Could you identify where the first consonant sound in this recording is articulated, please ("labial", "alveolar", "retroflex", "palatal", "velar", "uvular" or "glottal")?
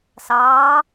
alveolar